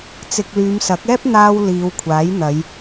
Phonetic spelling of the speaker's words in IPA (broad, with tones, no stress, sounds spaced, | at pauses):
t͡s ɪ˧ k̚ l yː˨˧ m s ɐ˨˥ k̚ ɛː˥ p̚ n̪ aː˧ w l iː˨˧ w kʷʰ aː˨˥ j n̪ ɐ˨˧ j